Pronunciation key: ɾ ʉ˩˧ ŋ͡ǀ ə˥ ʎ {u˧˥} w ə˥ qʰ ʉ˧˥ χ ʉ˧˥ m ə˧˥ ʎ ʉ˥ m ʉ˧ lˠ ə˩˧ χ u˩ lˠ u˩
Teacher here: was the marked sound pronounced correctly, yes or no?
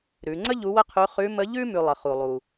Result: yes